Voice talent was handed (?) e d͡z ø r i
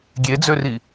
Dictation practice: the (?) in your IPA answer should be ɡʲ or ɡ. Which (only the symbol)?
ɡʲ